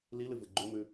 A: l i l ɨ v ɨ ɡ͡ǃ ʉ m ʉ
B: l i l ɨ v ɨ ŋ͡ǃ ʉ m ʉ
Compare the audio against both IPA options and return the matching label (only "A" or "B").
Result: A